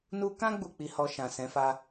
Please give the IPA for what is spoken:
n u˧ k ã˦ ɡ͡b u˦˨ k͡p i˧ h ɔ˧ ʃ ã˨ s ɛ̃˨˦ f a˧

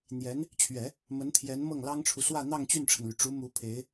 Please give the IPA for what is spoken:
n̪ j ɛ˧˥ n | t͡ɕʰ ɥ ɛ˨˩˦ | m ə˧˥ n t̪ʰ j ɛ˧˥ n m ɤ˥˩ ŋ l ɑ˥ ŋ ʈ͡ʂʰ u˨ s w ä˥˧ n̪ ɑ˥˧ ŋ t͡ɕ y˥˩ n ʈ͡ʂʰ ə˩ n l y˩ ʈ͡ʂ u˧˥ m u˧˥ pʰ e˧˥ ɪ̯

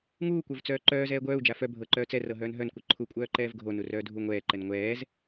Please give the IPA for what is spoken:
ŋ uː kʷ ə˞ v t͡s œː ǃ œː z ɛː ɡʷ œː u̯ d͡ʒ a f œ bʱ ɤ ǃ œː t͡s ɛ r ɤ ɦ œː n ɦ œ n kʷ ɤ ǃʰ u kʷʼ œː ǃ ɛː v ɡʱ o n u r œː dʱ u ŋʷ ɛː ǃ ɛ n ŋʷ ɛː z

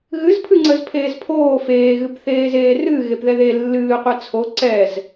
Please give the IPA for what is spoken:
ɣ ɨ z pʰ ɨ ŋ͡ǀ ə z pʰ eː z pʰ oː f eː ɣ ɨ p θ eː z eː r ɨː ɣ e p ð ɛ ð e lː ɨː qʷ ɛ t͡sʰ o ǀ ɛ z

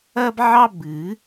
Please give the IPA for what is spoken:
ɐ˥ b ʕ ɑ˥ b ɨ˨˩˦

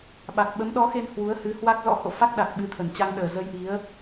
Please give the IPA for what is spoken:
ɓ a˨˩ k̚ ɓ ə˨˦ m ɗ ɔ˨˦ x e˧ n h w u˨˦ ə̯ h ɨ˨˦ h w a˦˥ k̚ z ɔ̰˧˥ h o̰˧˨ f a˦˥ k̚ ɗ a˨˩ k̚ ɓ ɨ˨˦ t̪ʰ ə˨˩ n t͡ɕ a˧ ŋ ɗ əː˨˩ z ə˧ j ʔ i˨˦ ə̯

